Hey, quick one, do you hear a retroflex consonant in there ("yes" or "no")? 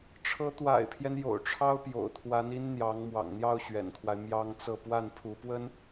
yes